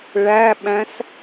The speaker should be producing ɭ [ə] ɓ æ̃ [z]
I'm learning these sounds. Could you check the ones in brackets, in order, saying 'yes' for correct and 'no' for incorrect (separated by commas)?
no, no